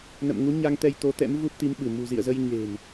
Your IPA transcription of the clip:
n ə̰˧˨ m ŋ u˨˦ ɲ a˧ ŋ t̪ ɛ˧ j t̪ o˨˦ t̪ ɛ̰˧˥ m v u˦˥ p̚ t̪ i˨˦ m ɓ ɨ˧˩ m ṳ˨˩ z ḭ˧˨ ə̯ z ə˧ j ɲ e̤˨˩ n

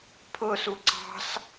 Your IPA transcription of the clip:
pʰ ʊ s u ǀ ɑ̤ s

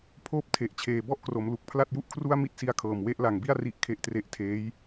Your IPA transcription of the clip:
pʰ oː˥˩ p̚ tʰ e˨˩ ʔ t͡ɕʰ eː˨˩ b ɔ˥˩ ʔ k r o˩˦ m l u˨˩ k̚ pʰ l a˥˩ t̚ j u˥˩ ʔ kʰ r u˥˩ a̯ m i˥˩ t̚ s i˦˥ a̯ kʰ ɤː˨˩ m w e˦˥ ʔ l a˨˩ ŋ b i˥˩ a̯ r i˥˩ ʔ kʰ e˥˩ ʔ t r e˥˩ ʔ tʰ eː˦˥ j

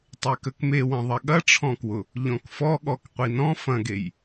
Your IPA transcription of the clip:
tˤ e k ə k m e w ɐ̃ ðˤ ɐ ɠ ɐ ʈ͡ʂʰ ɔ̃ k w ʊ | ʎ ɔ̃ k f ɔ ɠ ɔ k qʷ i n ɔ̃ f ɐ̃ ɡ e j

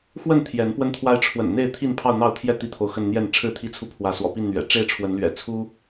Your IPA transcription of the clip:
x w ə˥˨ n t̪ʰ j ɛ˨˦ n p w ə˦ n t̪ʰ w a˦ ɪ̯ ʈ͡ʂʰ w ə̰˨˩ n n̪ e˥˨ ɪ̯ t̪ʰ i˥˨ n pʰ ɑ˥˨ ʊ̯ n̪ ɑ˥˨ ʊ̯ t̪ʰ j ɛ˥˨ t̪ i˦ t̪ʰ o˨ ʊ̯ x ə˥˨ n n̪ j ɛ˥˨ n ʈ͡ʂʰ ɻ̩˥˨ t̪ʰ i˥˨ t͡sʰ u˥˨ pʰ w ä˨˦ s w ɔ̰˨˩ p i˥˨ n n̪ ɥ ɛ̰˨˩ ʈ͡ʂ e˥˨ ɪ̯ ʈ͡ʂʰ w ə˨˦ n l ɥ ɛ̰˨˩ t͡sʰ u˦

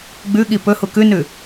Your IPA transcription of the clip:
ɡ͡b ʉ ɠ i p ɵ h u k ʉ n ʉ

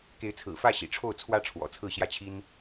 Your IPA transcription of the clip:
k e˧˥ ɪ̯ t͡sʰ ɹ̩˨˩ f ä˥˩ ɕ ḭ˨˩ ʈ͡ʂʰ o˥˩ ʊ̯ t͡sʰ w ä˥ ʈ͡ʂʰ w ɔ̰˨˩ t͡sʰ ɹ̩˥˧ ɕ j ä˥˩ t͡ɕʰ i˥ n

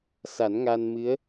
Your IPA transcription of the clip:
s a˨˩˦ n ŋ a˧ n m ɨ˧˥ ə̯

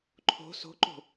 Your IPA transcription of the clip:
ǃʰ o̤ s o̤ ǃ o̤

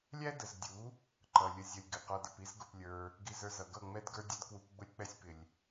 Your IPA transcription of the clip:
lʲ æ˦ d ə˨ z dʲ u˨˦ | ǃ ʌ˨ lʲ ə˧ zʲ ʌ˧ lʲ ɡ ɪ˨ q ɔ˧ d ə˧ p i˦ z ɡ ʊ˧ p lʲ ə˞˧ | ɡ i˧ z ə˞˧ z ʌ˨ ɡ ʌ˦˨ ŋ͡m ɛ˦ d ɡ ə˞˦ dʲ ɛ˦ d k w u˧ p ɡ͡b ʊ˦ lʲ k͡p ɛ˦ sʲ p ɪ˨ lʲ

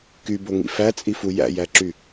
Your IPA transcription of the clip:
k y b o ŋ ḭ f æ t͡sʼ i f u j æ̰ j æ ǁ y

